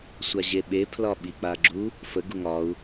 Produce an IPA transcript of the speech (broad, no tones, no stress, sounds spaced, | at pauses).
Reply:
sʷ a ʑ e ɓ e pʰ l ɒ ɓ i k͡p a ɡ͡ǁ u | f ə ɡ u ŋ ɒ u̯